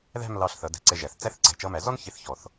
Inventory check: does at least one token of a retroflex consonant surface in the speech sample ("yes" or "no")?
no